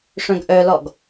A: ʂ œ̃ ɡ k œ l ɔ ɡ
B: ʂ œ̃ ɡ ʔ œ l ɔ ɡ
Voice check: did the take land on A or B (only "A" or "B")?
B